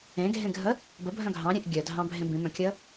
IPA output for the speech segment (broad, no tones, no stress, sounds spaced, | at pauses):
ẽ ɡʱ ẽ ɡʱ ə | b ə bʱ œ̃ ɡʱ ɑ̃ ɾʲ ẽ ʔ ɡʲ œ dʱ ɑ̃ bʱ ẽ b ĩ m œ̃ kʲ ə